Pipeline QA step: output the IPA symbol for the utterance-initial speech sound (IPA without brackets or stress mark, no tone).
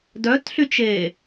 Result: d